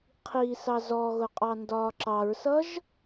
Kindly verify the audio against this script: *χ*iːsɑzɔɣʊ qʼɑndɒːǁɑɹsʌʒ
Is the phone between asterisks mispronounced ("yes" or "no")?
yes